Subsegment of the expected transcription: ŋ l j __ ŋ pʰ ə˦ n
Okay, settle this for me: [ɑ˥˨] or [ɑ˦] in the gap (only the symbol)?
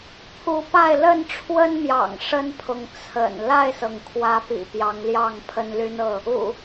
ɑ˥˨